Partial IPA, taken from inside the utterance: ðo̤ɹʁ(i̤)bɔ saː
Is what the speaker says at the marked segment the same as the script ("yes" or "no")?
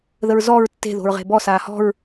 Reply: no